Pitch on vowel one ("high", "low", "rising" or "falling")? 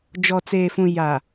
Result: low